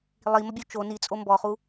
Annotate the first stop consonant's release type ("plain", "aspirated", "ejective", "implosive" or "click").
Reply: plain